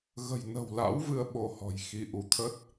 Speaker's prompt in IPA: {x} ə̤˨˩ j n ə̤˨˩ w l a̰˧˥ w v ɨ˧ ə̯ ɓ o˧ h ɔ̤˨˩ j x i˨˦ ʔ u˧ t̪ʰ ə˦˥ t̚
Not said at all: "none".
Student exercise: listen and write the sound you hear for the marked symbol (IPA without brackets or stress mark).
ɣ